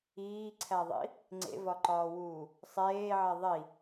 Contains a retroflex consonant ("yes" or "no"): no